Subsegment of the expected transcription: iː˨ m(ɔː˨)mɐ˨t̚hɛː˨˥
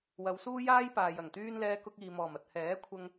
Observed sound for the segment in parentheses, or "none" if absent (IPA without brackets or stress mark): ɔː˨˩